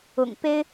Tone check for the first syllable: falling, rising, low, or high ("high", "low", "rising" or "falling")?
low